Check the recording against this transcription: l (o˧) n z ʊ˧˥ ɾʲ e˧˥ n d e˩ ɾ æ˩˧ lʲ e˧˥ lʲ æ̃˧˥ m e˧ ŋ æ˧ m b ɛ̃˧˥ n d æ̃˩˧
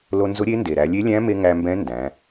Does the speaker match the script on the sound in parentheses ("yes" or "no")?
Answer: yes